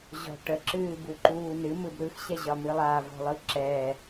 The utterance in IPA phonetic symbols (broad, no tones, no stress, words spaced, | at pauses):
ʑɔ̤ ʈəǁɨːbuǃuː nɨmɯb ɾɯxɕɛʑɒmɨ lˠavɔ̤lˠɯ ǁɛ